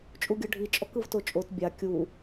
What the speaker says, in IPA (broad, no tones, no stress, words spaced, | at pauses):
t͡ʃʼuɡʲɤɖʱit͡ʃʼɔk ɯvtot͡ʃʼot bʲa kʲu